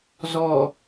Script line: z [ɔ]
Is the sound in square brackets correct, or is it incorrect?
correct